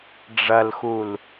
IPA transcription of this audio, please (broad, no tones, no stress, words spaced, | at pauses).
ɖ͡ʐɐlxul